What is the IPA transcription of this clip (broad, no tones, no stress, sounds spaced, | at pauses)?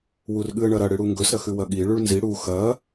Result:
w u r ɠ ɨ ə̯ ɳ ɐ ɾ ɐ ɽ ɨ ɽ u ŋ ɡ ɵ s ɾ ɐ x ʉ w ɐ ɠ i ɭ ʉ ɭ n z i ɽ u x ɐ